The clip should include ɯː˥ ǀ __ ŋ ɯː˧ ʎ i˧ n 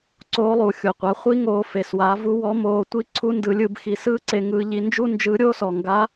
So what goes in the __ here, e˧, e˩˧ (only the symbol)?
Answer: e˧